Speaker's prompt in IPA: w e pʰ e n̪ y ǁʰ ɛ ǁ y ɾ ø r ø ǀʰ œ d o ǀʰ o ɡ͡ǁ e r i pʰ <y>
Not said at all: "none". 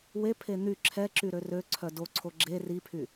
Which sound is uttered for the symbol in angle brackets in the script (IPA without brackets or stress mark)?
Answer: y